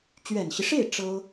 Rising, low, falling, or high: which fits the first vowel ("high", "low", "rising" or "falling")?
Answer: low